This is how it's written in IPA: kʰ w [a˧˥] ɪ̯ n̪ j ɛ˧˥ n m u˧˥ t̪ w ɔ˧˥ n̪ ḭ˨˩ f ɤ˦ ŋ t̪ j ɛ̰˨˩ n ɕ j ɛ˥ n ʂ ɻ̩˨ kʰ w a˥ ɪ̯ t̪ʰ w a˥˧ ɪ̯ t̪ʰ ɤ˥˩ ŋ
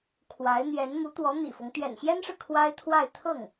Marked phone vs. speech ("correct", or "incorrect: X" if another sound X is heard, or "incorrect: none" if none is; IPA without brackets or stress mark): correct